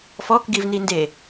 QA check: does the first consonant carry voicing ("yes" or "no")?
no